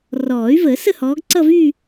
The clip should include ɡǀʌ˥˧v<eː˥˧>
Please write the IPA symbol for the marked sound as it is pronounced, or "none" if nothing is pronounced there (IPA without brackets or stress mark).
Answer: yː˥˧